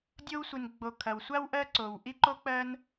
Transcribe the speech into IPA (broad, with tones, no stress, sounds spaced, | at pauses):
dʲ o˥ w sʷ i˨ n ɡ͡b o˨ kʰ ɐ˩ w sʷ a˥ w ʔ ɜ˦ ǀ o˩ w ʔ i˥ ǃ o˥ k͡p ɜ˦ n